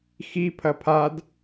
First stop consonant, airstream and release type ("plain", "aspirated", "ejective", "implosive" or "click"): aspirated